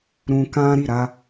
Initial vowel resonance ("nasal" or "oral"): nasal